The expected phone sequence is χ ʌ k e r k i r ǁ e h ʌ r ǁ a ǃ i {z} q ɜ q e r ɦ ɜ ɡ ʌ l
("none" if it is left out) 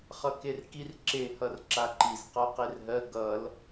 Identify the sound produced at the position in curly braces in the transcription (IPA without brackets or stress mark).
z